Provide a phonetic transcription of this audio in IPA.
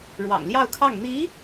ɻ w ɑ̰˨˩ ŋ l j ɑ˥˧ ʊ̯ kʰ ɑ˥˩ ŋ n̪ i˧˥

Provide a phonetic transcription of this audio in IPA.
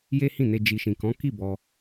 j e˦ h ĩ˦˨ n e˧ d͡ʒ i˨ ʃ ĩ˨ k ɔ̃˨˦ k i˦˨ b ɔ˧

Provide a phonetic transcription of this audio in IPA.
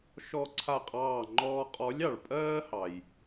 ʃ ɔ˥˧ ǀʰ a˥˩ qʼ ɑː˥˧ ŋ͡ǃ ɔː˥ qʼ ɔ˧˥ lʲ ɑ˨ ɭ pʼ ɜː˥ h ɑ˨ j

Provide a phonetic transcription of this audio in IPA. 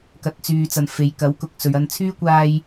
k ɐ˨˥ t̚ t͡s yː˨ t͡s ɐ˨ n f e˨ j k ɐ˨˥ w k ʊ˨ k̚ s ɵ˨ ɥ ɐ˧ n t͡sʰ yː˥ kʷ aː˥ j

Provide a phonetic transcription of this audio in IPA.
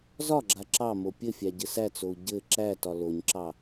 z ɒ ɡ͡ǁ a ǁ ɑ m o pʲ ɘ fʲ æ ɟ ɘ s æ t͡s o u̯ ɟ ɘ ǁ æ t ɒ l o ɲ ǁ ɑ

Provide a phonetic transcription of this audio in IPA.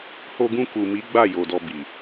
h o˧ ɡ ũ˧ k u˨ m i˨˦ ɡ͡b a˦˨ j o˨ d ɔ˧ b i˨

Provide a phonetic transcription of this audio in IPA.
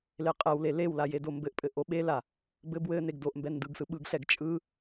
l e qʼ ɛ w l e l e w l a j e d o m b ɘ ʔ pʼ ɘ ʔ o ɓ e l a | b ɘ b w ɘ n e ɡ d o ʔ m b ɛ n d ɯ ɡ s ɯ ɓ ɯ ɡ ɬ ɛ ɡ t͡ʃʼ ɯ

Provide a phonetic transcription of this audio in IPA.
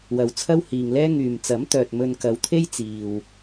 w ɐ˨ w t͡sʰ ɐ˥ w h iː˨ ŋ l ɛː˥ ŋ yː˨ m t͡s ɐ˨˥ m t̪ œː˨ t̚ m ɵ˧ n k ɐ˨˧ w t̪ʰ e˥ j t͡s iː˨ w

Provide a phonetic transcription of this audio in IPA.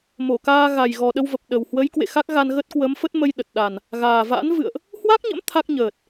m o˧˩ k aː˧ ɣ a˨˩ j ɣ ɔ˨˩ ɗ ə˧ w v ə˨˩ p̚ ɗ ə˨˩ w h w ə˨˦ j k w ḛ˧˨ x a˦˥ k̚ ɣ a˧ n ɣ ə˦˥ t̚ k w ə˨˦ m f ə˦˥ t̚ m ə˧ j ɗ ə˨˩ t̚ ɗ a˨˩ n | ɣ aː˨˩ v a̰˧˥ n v ɨ̰˧˨ ə̯ ʔ | h w a˦˥ k̚ ɲ ə̰˧˥ m t̪ʰ a˦˥ k̚ ɲ əː˨˩ t̚

